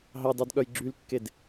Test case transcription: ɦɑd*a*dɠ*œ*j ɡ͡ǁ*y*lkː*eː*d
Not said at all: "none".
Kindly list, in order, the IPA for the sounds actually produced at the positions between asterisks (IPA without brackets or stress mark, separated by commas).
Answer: ɑ, œ, y, e